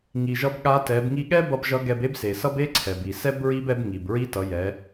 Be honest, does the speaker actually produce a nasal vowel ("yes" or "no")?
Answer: no